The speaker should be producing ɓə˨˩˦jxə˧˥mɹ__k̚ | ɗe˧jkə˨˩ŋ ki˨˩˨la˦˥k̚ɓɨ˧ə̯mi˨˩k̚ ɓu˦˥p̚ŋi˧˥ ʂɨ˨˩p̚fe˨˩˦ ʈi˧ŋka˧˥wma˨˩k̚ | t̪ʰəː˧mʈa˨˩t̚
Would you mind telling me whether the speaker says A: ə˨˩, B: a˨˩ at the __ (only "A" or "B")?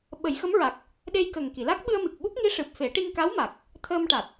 B